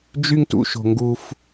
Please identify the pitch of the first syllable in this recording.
high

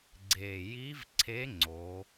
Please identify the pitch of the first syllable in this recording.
low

